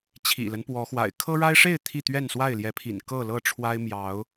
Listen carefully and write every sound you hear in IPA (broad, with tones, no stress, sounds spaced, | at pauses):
t͡ɕʰ ḭ˨˩ l ə˦ n p w ɔ˨˦ x w a̰˨˩ ɪ̯ kʰ ɤ˦ ɻ a˦ ɪ̯ ʂ e˥˨ ɪ̯ t̪ʰ i˥˨ t̪ ɥ ɛ˥˨ n s w a˥˨ ɪ̯ l j ɛ˨˦ pʰ ḭ˨˩ n k ɤ˥˨ l ɤ˥˨ ʈ͡ʂʰ w a˦ ɪ̯ m j ɑ˨˦ ʊ̯